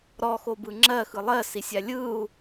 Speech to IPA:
ɾ ɔ x o b ɯ ŋ͡ǁ ɜ x ɯ lˠ ɜ s i sʲ a lʲ ɯ u̯

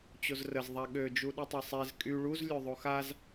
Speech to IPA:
t͡ɕ o z r ə z ðˤ a ɠ ø d͡ʒ u ɗ ɯ tˤ ɛ sˤ ɛ z kʼ y ɭ u z lʲ ø ðˤ o x a z

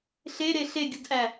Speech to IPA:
ɬ e ɾ e ɬ e ɡʲ u d ʔ æ

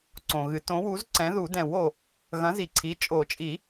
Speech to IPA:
ǀ õ˨ ɣ ɨ˨˥ t õ˨˥ w u˨˥ z ǀ ɛ̃˨˥ ð u˨˩˦ d ɛ̃˨˩˦ w o˨ | ɣ ɐ̃˨˥ z i˨ ǀʰ i˨˥ t͡ʃʼ o˨˩˦ t͡ʃʼ i˨˩˦

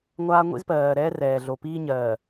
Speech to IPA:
ŋʷ aː˦ ŋʷ ḭ˦ z p ɜː˨ ɾ ɛː˦ r ɛː˨ ɮ o˨ p iː˦ ɲ ɜː˨

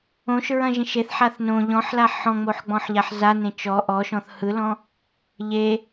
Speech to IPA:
õ ʃ ɹ ɐ̃ ʒ ẽ ʃ e θ ħ a θ n õ ʎ ɔ̃ ħ l a ħ ɔ̃ ŋ͡m o ħ ɡ͡b ɔ̃ ħ ʎ a ħ z a n ẽ t͡ʃ ɔ ʔ ɔ ʃ ɔ̃ θ h ɯ l ɔ̃ | ʎ e

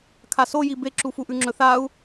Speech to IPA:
kʰ a s o j i b e ǁ u f u ʔ ʉ ŋ͡ǁ ɵ θ a u̯

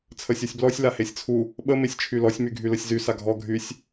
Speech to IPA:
t͡sʰ ə sʲ ɔ sʲ b l ɔ sʲ l a h e sʲ t͡sʰ u | ɓ ə m e sʲ t͡ʃʰ y l ɔ sʲ m y ɡʱ y l ə sʲ z y s a ɡʱ ɔ ɡʱ y sʲ

